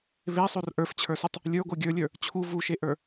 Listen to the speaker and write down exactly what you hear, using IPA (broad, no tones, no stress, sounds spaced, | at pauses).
β e sˤ o r ʔ ə˞ f t͡ɕʰ ə˞ s u tˤ | lʲ ə˞ ɡʷ ə˞ ɡʲ ə˞ lʲ ə˞ | t͡ɕʰ u v u ʃ e ʔ ə˞